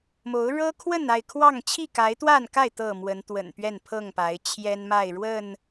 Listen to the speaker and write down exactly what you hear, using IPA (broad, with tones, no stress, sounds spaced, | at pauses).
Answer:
m o˨˦ ʊ̯ ɻ ɤ˦ kʰ w ə˥˨ n a˥˨ ɪ̯ kʰ w ɑ˥˨ ŋ t͡ɕʰ i˥˨ k a˨˦ ɪ̯ t̪ w a˥˨ n k a˥˨ ɪ̯ t̪ ɤ˥˨ m w ə˨˦ n t̪ w ə̰˨˩ n p ɥ ɛ˥˨ n pʰ ɤ˥˨ ŋ p a˨˦ ɪ̯ t͡ɕʰ j ɛ˦ n m a˥˨ ɪ̯ ɻ w ə˥˨ n